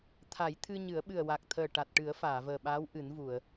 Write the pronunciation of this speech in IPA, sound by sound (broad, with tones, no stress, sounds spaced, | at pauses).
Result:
t̪ʰ a˨˩˦ j t̪ʰ ɨ˧ ɲ ɨ˨˩˦ ə̯ ɓ ɨ˨˩ ə̯ w a˨˩ k̚ t̪ʰ əː˨˩ ʈ a˨˩ t̚ ʈ ɨ˨˩˦ ə̯ f aː˨˩˨ v əː˨˩ ɓ aː˧˥ w ʔ ɨ˨˩˦ n v u˨˩˨ ə̯